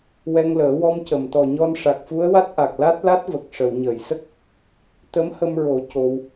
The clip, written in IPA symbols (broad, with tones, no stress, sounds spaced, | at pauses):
w ɛ˧ ŋ l əː˨˩˦ w ɔ˧ m c ə˨˩˨ m t̪ ɔ˨˩ ɲ ɔ˧ n ʂ a˨˩ k̚ f u˧˥ ə̯ w a˦˥ t̚ ʔ a˨˩ k̚ l a˦˥ t̚ l a˦˥ t̚ v ə˨˩ k̚ ʂ ə˨˩˨ w ɲ əː˨˩˨ j s ə˦˥ k̚ | t̪ ə˧˥ m h ə˧ m ɹ o˨˩˦ c o˧ w